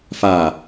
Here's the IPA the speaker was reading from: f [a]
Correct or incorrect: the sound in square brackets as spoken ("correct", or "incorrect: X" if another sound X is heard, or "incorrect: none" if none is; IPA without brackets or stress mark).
correct